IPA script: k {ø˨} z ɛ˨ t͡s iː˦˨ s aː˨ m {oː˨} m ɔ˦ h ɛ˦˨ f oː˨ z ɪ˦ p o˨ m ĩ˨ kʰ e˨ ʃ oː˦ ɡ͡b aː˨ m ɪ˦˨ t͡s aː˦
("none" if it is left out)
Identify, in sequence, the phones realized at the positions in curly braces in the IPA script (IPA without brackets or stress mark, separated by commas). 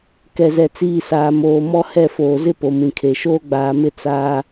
ɛ˨, oː˨